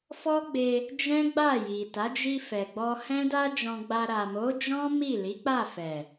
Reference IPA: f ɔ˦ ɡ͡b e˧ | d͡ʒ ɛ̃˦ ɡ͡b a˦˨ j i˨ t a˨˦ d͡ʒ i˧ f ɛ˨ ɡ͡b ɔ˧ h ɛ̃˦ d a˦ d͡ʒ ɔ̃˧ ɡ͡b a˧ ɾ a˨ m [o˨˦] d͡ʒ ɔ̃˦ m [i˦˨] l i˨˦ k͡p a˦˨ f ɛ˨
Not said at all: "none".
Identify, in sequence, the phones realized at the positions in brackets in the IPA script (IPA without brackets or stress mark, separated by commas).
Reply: o˨˦, i˦˨